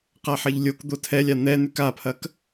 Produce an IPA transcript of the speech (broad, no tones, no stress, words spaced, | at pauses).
qaħɐʎlʲokd̪o tʰɛlʲa n̪ɛ n̪ʉkapʰɐk